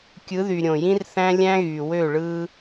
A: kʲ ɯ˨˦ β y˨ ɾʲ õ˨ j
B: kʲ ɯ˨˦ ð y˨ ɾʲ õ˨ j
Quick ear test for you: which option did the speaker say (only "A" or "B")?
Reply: B